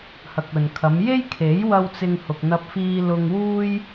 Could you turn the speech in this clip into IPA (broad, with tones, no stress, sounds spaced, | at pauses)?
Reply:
h ɐ˨ k̚ ɵ˨ n kʰ ɐ˨˧ m j e˥ j kʰ e˨˥ j w ɐ˧ w t͡s ɪ˧ ŋ h ʊ˨ k̚ n̪ ɐ˧ p̚ f iː˧ l ʊ˨ ŋ w uː˧ j